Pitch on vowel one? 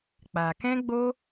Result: low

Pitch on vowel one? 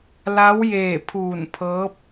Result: rising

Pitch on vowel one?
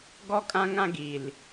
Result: high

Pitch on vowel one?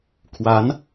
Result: rising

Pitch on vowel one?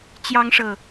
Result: high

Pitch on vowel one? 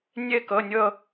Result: falling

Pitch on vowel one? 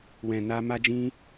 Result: low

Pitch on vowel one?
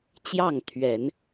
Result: falling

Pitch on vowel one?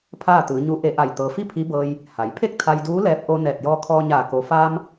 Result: falling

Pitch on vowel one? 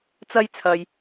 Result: high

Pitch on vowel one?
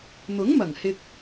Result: rising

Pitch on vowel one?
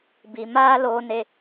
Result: low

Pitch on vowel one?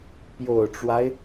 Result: low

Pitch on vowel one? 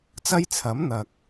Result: high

